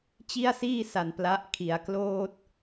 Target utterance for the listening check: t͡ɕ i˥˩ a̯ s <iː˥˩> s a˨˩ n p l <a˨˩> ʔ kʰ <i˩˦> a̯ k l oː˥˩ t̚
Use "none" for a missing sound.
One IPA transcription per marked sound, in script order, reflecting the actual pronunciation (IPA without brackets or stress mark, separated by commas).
iː˥˩, a˦˥, i˩˦